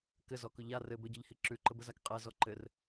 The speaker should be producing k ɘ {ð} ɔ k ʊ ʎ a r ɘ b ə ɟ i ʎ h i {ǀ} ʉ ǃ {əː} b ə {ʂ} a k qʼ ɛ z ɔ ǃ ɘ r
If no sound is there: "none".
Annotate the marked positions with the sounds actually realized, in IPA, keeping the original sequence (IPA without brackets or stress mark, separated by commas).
z, ǁ, ə, z